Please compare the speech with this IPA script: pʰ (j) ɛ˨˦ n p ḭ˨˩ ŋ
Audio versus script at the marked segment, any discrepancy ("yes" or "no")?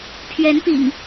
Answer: yes